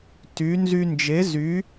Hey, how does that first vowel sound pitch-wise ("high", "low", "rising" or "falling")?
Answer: rising